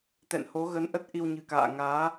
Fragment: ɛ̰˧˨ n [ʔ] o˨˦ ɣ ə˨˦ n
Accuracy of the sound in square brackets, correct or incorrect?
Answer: incorrect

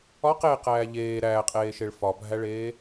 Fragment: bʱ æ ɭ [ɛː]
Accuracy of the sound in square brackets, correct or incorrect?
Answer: incorrect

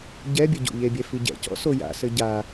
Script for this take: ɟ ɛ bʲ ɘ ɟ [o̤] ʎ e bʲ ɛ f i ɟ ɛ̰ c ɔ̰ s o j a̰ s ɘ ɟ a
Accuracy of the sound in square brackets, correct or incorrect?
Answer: incorrect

